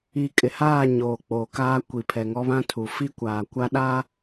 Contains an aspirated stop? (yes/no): yes